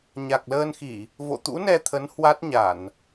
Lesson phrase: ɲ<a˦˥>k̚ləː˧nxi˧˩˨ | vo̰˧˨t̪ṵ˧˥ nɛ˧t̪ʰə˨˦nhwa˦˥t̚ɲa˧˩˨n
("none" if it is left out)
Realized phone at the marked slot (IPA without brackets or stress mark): a˨˩